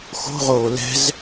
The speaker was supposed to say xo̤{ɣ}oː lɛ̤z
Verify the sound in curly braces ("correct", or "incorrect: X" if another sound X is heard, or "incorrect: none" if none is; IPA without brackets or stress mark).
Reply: incorrect: ʁ